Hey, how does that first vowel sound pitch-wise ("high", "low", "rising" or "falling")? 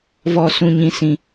high